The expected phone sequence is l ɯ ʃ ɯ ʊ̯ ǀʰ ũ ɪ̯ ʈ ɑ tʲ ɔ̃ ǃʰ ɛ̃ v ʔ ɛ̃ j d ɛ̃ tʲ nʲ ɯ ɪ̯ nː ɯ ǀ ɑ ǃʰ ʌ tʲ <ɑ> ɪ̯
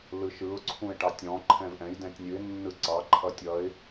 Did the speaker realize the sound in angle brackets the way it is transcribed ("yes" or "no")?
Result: no